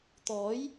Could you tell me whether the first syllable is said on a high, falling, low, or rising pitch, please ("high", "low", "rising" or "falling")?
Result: rising